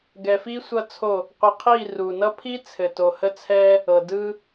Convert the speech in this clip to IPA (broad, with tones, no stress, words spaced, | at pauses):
ɡɛ˨fi˦ sʷʌ˦t͡sʰo˦˨ | qʷi˨qʰi˦˨ ru˨ nʌ˦pʰi˦ t͡sʰɘ˨to˨hə˦ t͡sʰɛ˦ | ɤ˨ dɯ˦